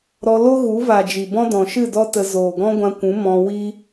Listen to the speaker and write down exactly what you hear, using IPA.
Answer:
ɾ ɔ˧ l o˦ ɣ u˨˦ v a˨ d͡ʒ i˨ b ɔ̃˦ d ɔ̃˨ ʃ ɨ˦˨ d ɔ˦ t ə˧ z oː˨ ɡ ɔ̃˦ ɡʷ ã˧ kʷ ũ˨˦ m ɔ̃˧ w i˦

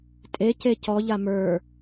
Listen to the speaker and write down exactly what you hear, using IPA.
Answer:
tʼ e c e c ɔ ʎ a m ə˞

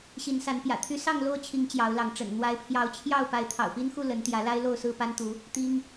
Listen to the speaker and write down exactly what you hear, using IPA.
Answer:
ɕ i˨˦ n s a˨˦ n p j ä̰˨˩ t̪ʰ y˦ s ɑ˥˨ ŋ l o˥˨ ʊ̯ t͡ɕʰ i˨˦ ŋ t͡ɕ j ɑ˨˦ ʊ̯ l ɑ˨˦ ŋ ʈ͡ʂ ə̰˨˩ n n̪ w a˨˦ ɪ̯ pʰ j ɑ˨˦ ʊ̯ t͡ɕʰ j ɑ˥˨ ʊ̯ p a˨˦ ɪ̯ t̪ʰ ɑ̰˨˩ ʊ̯ p i˦ n x u˥˨ l ə˨˦ n t̪ j ä˨˦ l a˦ ɪ̯ l o˥˨ ʊ̯ s ɹ̩˥˨ p a˦ n t̪ u˨˦ | t̪ i˦ ŋ

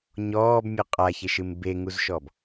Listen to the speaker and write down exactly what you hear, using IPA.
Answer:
ɲ ɔː b mʲ ɨ qʼ a ç e ʃ ɨ m b e ŋ u z ʃ ɔ b

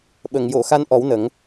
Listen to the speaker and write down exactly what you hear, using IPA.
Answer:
ɓ ə˨˩˨ ŋ j o˨˩˨ x a˧ n ʔ ɔ˨˩˦ w n ə˨˩˦ ŋ

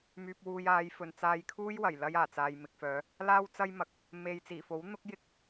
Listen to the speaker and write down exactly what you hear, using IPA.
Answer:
m yː˧ p̚ w uː˧ j aː˨˧ j f ɵ˨ n t͡s aː˧ j kʰ uː˥ j w ɐ˨˩ j l ɐ˥ j aː˨˩ t͡s aː˨ j m ɪ˨ k̚ f œː˨˧ | l aː˥ w t͡s ɐ˥ j m ɐ˨ k̚ | m e˧ j t͡s iː˨˩ f o˨˥ w n̪ ʊ˥ k̚ j ɪ˥ k̚

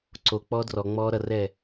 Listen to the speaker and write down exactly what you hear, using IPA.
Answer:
ǀ o k͡p ɔː d r ɔ ŋ͡m ɔː ɾ ʌ r ɛː

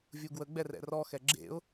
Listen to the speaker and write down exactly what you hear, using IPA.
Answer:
vʲ u ɡ w ə ɡ͡b ɛ r ɛ̰ r ɔ x ɛ ɡ͡ǁ ḛ ʊ̯

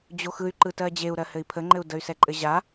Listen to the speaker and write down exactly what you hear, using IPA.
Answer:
d͡ʑ o x ɯ y̯ ǃ ɯ t ɜ d͡ʑ e u̯ ɾ ɜ h ɘ i̯ pʰ ə ŋ͡ǃ ɘ u̯ d ə y̯ s ɛ ǃʼ ɘ ʑ a

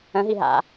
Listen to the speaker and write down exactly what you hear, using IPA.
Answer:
ə̃ ɦ i ɦ a̰

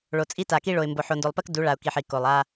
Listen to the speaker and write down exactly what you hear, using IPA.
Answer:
ɭ o˨ t͡sʼ i˦ t a˨ k i˦ ɭ o˨ ɪ̯ m b o˨ ħ o˨ n d o˨ lˠ p ɜ˦ k d u˨˦ ɭ a˨ ʊ̯ k i˨ ħ i˨ k o˨ lˠ a˦

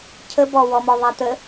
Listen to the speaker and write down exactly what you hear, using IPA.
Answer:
cʰ ə b ɔ w ɔ m ɔ ðˤ a t̪ ə

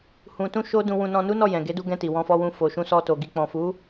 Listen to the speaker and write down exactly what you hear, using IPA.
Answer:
h ũ˧ t ũ˦ ʃ o˦ d ũ˧ w ũ˧ n ɔ̃˧ n u˦ n ɔ˦˨ j ɛ̃˨ ɡ e˨˦ d u˧ ɡ ɛ̃˧ t i˨ w ɔ̃˧ f ɔ˧ w ũ˧ f o˨ ʃ ũ˧ s ɔ˧ t o˨ ɡ i˨ k͡p ɔ̃˨ f u˨˦

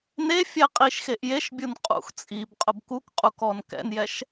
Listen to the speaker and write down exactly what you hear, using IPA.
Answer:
n e fʲ ɛ qʼ i ʃ x e ʔ j e ʃ bʲ u n qʼ ṵ x t͡sʼ i b qʼ ʊ b k u k qʼ u k ɔ n k ɛ̰ n j ɛ ʃ

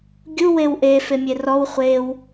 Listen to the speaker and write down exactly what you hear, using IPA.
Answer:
ɡʲ u w e w ʔ e f e mʲ e r ɔ w χʷ e w

